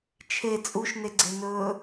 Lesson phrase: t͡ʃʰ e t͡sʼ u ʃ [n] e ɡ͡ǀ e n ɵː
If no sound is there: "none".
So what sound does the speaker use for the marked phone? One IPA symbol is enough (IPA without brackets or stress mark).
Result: n